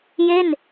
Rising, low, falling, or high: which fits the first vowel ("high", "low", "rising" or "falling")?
falling